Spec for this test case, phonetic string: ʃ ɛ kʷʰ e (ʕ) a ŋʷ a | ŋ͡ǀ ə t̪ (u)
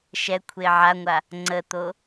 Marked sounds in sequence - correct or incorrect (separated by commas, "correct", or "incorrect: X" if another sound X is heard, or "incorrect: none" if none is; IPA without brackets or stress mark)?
correct, incorrect: o